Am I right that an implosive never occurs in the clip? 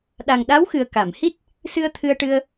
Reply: no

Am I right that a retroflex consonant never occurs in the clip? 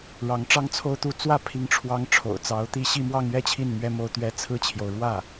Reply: no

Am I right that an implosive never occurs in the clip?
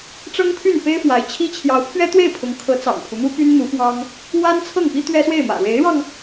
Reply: yes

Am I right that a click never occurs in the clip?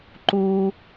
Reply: no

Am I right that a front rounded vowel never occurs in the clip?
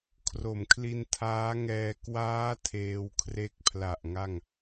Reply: yes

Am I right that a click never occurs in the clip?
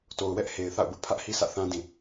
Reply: yes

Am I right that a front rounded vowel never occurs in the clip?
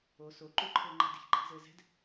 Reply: yes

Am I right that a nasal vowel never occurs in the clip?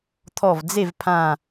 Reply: no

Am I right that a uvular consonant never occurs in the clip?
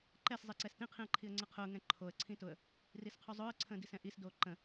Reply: no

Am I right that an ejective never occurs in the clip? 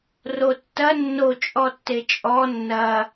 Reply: no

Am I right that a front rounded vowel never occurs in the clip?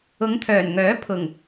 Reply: no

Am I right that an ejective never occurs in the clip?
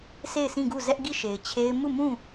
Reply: yes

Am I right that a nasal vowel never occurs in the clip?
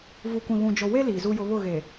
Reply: no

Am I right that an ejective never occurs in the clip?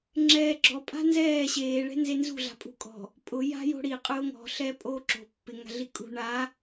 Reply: no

